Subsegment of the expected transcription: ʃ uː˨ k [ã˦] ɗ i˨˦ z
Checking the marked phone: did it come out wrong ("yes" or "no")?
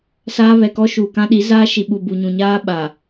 no